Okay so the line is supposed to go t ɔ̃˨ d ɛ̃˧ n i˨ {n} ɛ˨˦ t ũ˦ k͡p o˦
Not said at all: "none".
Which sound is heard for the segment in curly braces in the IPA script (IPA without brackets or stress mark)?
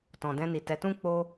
t